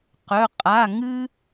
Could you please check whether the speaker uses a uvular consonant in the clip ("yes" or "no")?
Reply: yes